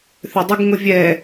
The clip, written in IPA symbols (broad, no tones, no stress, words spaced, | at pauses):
θʏdˤʊɡ ŋʊvʲɛ